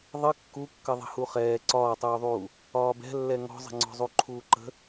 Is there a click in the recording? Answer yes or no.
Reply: yes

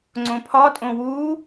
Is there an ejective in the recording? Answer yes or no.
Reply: yes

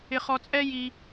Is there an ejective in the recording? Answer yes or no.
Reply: yes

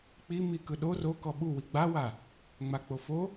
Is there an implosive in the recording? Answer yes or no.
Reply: yes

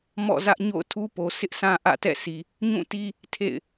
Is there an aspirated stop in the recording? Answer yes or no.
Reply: yes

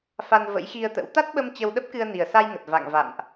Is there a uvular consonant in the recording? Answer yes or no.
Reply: no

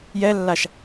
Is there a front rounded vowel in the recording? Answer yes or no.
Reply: no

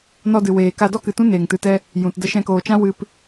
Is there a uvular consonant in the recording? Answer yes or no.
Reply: no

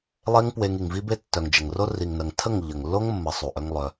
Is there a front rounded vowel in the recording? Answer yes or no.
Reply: yes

